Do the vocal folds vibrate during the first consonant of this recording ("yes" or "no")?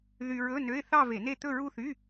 yes